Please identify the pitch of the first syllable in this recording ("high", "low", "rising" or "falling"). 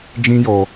high